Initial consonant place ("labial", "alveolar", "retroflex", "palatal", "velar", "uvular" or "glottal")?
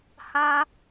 glottal